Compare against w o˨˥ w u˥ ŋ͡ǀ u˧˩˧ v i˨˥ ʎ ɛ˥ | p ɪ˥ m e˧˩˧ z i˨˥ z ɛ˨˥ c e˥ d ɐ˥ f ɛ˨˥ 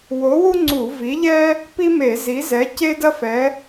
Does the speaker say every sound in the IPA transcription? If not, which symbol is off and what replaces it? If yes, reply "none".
ɪ˥ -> i˥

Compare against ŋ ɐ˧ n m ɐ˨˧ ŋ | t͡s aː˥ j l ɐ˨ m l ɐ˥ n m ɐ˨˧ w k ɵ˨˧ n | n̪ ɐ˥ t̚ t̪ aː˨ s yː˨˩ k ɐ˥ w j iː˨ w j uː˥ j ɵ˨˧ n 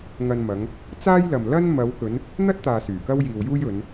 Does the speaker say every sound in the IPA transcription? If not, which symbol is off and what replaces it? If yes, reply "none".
none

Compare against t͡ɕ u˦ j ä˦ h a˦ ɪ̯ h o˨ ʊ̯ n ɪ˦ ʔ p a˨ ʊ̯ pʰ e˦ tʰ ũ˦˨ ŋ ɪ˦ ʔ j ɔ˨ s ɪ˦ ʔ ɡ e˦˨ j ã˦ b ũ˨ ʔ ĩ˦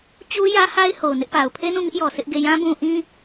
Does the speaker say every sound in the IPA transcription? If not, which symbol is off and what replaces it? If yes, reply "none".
tʰ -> n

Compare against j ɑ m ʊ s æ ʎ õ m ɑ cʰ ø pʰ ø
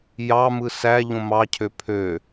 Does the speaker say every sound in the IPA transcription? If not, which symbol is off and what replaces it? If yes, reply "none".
ʊ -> ɯ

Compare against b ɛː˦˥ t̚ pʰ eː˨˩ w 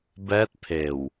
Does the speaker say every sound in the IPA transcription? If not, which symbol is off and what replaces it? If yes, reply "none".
none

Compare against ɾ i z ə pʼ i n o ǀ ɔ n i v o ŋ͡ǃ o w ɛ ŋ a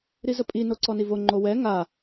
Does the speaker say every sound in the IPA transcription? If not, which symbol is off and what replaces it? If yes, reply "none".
none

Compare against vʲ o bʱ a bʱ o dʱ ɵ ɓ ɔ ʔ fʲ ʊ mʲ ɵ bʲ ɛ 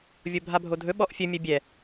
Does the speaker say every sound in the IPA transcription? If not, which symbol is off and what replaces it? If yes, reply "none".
ʊ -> ɵ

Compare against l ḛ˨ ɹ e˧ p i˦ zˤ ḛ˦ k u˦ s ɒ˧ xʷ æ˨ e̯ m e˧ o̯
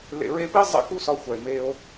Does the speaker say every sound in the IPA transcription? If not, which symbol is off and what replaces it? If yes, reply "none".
none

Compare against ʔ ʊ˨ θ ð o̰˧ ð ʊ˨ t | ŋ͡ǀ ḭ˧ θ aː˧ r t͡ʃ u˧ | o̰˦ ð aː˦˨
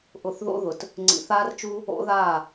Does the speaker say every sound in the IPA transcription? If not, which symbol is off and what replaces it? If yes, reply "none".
ḭ˧ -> ḭ˨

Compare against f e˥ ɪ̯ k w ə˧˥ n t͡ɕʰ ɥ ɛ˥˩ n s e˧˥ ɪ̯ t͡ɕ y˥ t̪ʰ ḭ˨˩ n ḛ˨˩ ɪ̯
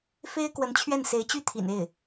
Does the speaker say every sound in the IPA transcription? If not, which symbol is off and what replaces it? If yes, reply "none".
ḛ˨˩ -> e˥˩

